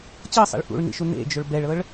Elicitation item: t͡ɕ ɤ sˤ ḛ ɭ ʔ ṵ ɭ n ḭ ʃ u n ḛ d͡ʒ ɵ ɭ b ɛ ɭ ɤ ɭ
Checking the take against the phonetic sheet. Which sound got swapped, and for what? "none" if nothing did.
none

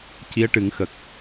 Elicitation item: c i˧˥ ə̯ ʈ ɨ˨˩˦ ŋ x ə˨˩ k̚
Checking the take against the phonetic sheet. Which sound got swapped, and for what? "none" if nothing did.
none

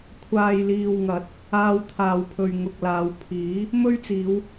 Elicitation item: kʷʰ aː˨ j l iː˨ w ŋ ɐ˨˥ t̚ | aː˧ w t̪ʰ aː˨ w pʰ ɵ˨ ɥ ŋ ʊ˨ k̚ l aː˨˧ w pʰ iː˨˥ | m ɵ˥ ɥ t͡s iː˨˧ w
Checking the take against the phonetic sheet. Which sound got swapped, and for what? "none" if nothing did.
none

